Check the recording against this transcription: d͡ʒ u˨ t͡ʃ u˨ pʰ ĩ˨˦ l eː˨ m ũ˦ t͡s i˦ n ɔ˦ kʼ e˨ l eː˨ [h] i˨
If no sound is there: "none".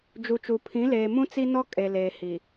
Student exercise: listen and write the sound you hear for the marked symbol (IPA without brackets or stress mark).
h